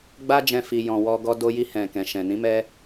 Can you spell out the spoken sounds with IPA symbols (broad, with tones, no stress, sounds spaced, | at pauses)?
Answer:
ɡ͡b a˧ d͡ʒ ɛ̃˨ f i˨ j ɔ̃˨ w ɔ˧ ɡ ɔ˧ d o˧ j i˧ h ɛ̃˨ k ɛ̃˨ ʃ ɛ̃˨ n ĩ˨˦ m ɛ˧